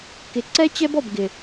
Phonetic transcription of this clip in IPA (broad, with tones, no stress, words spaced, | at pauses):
kɪ˨ǀɛ˦ t͡ɕɛ˦bɔ˨b ɡɪ˨